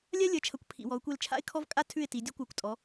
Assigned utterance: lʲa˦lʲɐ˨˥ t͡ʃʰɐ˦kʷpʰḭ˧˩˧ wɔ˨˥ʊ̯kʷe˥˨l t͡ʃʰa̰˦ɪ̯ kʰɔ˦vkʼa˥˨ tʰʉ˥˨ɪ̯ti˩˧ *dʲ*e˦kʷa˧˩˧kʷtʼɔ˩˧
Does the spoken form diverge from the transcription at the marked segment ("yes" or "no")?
no